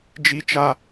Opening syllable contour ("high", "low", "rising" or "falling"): high